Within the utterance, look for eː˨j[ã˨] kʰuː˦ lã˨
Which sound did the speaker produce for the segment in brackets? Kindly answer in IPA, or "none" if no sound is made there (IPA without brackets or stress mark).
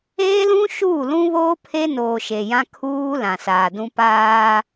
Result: ã˦